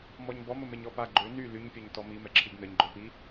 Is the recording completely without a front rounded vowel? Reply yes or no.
no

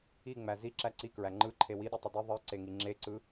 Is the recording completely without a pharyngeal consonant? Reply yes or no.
yes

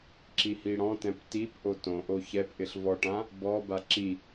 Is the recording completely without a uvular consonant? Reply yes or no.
yes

